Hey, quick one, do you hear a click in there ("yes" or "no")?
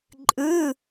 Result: yes